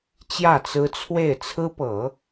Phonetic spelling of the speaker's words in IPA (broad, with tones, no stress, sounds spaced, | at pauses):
t͡ɕ j ä˥˩ t͡s ɹ̩˥ t͡sʰ w e˥˩ ɪ̯ t͡sʰ ɹ̩˥ p ɤ˨˩˦